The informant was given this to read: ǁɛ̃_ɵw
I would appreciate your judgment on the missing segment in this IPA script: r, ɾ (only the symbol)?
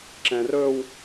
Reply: r